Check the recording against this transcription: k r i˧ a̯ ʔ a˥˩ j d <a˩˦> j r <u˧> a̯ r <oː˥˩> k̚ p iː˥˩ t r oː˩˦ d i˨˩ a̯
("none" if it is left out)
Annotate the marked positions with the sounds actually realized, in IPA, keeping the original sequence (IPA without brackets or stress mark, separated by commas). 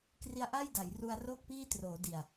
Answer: a˩˦, u˧, oː˥˩